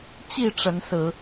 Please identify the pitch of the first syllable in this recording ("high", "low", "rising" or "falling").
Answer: falling